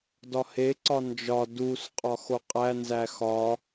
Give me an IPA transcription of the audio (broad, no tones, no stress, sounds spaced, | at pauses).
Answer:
d ɒ h e ǀ ɒ n d͡ʒ ɒ d u s qʼ ɒ x o qʼ æ n z æ x ɒ